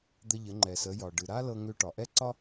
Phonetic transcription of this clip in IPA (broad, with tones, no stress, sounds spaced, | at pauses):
d̪ ə˧ ʎ ə˩˧ ŋ͡ǃ ɛ˩ s ə˩˧ j ɒ˩ ɖ ɨ˩ ɾ a˥ l ɤ˧ ŋ ʏ˧ ʈ ɒ˩ ʔ ɛ˥ ǀ ɒ˥